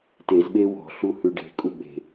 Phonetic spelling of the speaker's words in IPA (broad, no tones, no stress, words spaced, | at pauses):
tezɓe wɔ̤ɬu hʉɖe̤kʼu ɓe̤